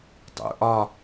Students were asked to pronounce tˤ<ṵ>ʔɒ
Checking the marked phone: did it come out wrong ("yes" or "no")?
no